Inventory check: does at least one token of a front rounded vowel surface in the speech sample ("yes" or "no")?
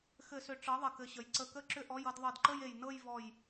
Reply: yes